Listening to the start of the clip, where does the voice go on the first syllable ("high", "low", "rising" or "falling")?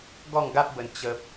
falling